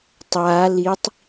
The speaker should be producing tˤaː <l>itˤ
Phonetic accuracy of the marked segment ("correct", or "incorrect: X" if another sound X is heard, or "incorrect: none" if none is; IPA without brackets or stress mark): correct